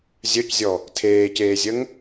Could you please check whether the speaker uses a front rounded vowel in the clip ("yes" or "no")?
yes